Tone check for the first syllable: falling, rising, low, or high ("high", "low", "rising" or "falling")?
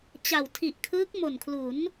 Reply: low